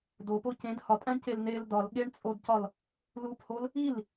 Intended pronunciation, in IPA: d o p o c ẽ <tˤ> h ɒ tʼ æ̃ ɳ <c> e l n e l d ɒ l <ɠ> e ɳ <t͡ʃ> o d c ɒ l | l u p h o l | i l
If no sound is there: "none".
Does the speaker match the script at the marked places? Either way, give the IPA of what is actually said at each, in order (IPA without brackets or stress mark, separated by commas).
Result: d, c, ɠ, t͡sʼ